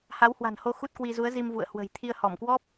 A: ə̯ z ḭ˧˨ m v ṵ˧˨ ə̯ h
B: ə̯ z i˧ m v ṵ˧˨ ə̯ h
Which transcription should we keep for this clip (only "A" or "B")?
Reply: B